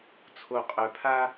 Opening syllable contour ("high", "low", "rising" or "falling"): low